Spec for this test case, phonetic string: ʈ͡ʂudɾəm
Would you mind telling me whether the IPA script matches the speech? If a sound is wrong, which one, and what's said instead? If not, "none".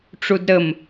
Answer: none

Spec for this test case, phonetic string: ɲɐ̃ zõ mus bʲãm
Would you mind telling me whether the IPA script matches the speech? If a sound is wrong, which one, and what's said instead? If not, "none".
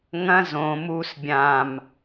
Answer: ɲ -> ŋ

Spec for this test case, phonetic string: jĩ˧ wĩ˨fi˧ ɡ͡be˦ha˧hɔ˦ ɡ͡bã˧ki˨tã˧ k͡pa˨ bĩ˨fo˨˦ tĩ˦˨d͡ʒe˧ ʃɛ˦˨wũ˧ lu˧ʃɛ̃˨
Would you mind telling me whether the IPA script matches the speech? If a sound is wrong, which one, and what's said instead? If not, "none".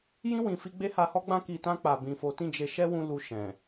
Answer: ɛ˦˨ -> ɛ˦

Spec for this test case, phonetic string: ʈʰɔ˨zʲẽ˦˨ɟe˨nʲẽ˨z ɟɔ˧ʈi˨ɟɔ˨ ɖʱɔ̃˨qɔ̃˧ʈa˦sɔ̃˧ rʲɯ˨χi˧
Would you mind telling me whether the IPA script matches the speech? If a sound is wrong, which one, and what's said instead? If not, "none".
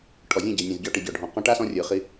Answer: none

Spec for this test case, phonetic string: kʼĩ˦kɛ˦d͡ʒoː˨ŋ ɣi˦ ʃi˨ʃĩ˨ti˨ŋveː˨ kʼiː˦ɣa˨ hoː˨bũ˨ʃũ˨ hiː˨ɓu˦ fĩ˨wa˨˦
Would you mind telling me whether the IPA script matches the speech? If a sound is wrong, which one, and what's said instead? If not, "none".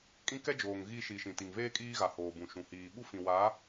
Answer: eː˨ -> eː˦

